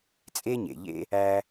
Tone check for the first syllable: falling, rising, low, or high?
high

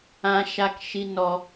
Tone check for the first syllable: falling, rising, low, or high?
low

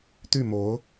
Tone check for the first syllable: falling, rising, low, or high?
falling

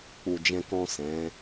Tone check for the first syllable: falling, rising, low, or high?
low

